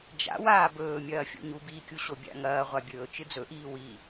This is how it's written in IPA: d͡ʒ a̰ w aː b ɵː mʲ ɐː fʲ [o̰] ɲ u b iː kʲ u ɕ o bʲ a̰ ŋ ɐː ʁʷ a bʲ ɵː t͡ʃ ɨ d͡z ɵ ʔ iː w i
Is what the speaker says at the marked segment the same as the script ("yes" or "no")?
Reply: yes